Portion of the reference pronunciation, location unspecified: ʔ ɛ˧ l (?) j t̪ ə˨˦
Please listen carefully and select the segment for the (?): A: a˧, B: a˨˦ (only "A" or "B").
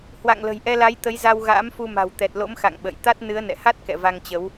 B